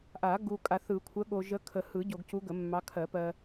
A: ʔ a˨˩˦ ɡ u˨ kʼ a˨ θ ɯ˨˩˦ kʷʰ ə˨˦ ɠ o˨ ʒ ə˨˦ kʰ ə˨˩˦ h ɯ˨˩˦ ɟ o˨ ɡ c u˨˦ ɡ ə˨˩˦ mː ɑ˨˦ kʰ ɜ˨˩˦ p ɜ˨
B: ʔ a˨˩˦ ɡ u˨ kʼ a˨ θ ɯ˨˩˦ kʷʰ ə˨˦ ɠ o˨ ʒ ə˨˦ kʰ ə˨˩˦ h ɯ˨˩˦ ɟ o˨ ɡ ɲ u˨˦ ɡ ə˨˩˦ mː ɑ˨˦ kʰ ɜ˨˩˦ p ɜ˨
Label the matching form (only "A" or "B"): A